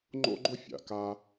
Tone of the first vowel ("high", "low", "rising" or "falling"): high